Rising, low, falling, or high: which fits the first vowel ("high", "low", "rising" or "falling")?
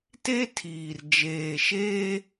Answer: high